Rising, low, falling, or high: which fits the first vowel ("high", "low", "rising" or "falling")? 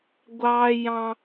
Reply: high